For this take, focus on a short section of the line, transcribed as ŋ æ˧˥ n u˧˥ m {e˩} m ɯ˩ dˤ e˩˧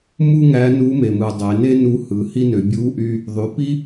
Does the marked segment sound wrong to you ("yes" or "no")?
no